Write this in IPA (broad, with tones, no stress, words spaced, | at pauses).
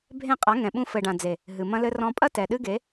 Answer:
bʱẽ˦˨qʼa˨˦ ŋɛ̃˨ɓũ˧fɘ˨ɖã˨ d͡ze˨ | ɦɨ˨ mɐ̃˧lɘ˧rɔ̃˧pʼɐ˦ tɛ˨ɗɨ˦ɡe˨˦